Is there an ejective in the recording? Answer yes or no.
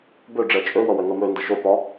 yes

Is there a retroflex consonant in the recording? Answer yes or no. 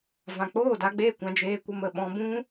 no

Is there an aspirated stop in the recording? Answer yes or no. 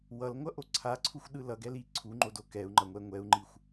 yes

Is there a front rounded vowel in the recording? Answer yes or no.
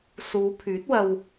yes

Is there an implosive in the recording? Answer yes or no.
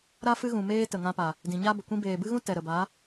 no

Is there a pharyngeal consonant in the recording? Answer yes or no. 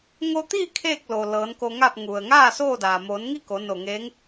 no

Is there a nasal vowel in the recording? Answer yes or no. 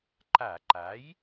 no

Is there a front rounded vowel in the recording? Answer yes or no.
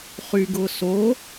yes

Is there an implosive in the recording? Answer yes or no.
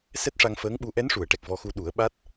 yes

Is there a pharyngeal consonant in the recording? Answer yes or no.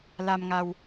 no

